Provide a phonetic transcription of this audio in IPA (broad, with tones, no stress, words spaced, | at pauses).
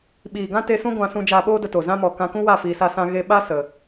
ɓiː˨ɡã˦te˧sũ˦ ɡʷã˧sũ˧d͡ʒaː˧ɓoː˦ də˧to˨zã˦ mɔ˨kã˧kũ˦wa˦˨ fiː˧sa˦sã˦ ɣe˧ɓa˦ sə˨